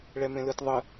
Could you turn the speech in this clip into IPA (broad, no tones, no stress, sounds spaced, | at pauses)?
ɭ ɛ m ẽ l ɯ t ðˤ ɯ